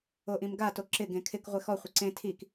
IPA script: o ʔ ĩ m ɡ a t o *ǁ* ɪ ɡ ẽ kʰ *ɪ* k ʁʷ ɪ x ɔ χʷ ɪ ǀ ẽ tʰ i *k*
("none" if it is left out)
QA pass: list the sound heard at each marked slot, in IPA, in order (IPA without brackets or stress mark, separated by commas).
ǁ, ɪ, k